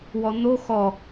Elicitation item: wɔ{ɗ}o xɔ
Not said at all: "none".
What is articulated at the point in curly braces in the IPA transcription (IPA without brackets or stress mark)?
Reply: n̪